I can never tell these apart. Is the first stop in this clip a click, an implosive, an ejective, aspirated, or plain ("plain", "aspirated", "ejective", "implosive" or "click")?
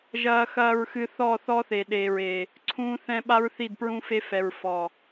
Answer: implosive